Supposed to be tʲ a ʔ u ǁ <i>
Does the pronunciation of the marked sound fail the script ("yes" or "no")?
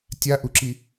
no